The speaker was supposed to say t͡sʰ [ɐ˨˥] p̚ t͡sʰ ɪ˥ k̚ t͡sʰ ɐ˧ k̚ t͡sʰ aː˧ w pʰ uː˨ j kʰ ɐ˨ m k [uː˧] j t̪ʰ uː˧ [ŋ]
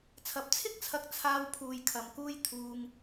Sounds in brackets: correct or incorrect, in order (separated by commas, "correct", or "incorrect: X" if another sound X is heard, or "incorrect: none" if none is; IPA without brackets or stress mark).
incorrect: ɐ˨, correct, correct